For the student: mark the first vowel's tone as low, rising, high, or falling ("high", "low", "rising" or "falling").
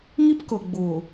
high